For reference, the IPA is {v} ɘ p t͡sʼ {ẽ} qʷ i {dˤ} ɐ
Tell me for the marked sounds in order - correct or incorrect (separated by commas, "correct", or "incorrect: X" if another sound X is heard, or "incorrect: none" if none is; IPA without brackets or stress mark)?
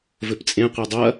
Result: correct, correct, correct